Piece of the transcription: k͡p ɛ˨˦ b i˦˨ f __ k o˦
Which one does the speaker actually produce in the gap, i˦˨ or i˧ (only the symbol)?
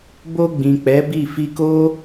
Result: i˧